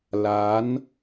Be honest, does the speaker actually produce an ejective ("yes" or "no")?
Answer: no